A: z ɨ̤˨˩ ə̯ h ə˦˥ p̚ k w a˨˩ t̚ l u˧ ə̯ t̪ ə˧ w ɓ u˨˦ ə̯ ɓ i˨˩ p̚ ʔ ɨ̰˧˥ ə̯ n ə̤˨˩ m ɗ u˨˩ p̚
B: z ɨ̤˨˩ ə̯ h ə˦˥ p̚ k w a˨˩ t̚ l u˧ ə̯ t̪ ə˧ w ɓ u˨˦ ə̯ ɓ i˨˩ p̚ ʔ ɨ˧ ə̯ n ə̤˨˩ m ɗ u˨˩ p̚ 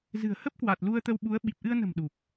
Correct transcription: B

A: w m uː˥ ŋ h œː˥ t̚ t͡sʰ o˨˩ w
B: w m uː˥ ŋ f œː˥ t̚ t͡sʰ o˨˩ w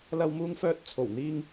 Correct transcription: B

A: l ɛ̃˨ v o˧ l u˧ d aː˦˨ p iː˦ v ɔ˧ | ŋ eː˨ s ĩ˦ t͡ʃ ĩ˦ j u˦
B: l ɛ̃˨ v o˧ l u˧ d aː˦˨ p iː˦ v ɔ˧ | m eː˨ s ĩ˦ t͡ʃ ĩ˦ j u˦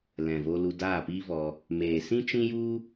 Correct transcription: B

